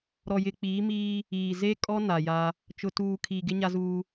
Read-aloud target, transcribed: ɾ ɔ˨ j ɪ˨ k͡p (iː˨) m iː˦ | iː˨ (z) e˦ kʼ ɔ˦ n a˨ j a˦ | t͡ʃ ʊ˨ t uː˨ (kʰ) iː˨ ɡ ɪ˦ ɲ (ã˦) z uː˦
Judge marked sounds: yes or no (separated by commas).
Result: no, yes, yes, no